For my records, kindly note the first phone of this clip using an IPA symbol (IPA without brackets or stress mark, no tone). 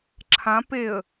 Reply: ǁʰ